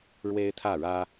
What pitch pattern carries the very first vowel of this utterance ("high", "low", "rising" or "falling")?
high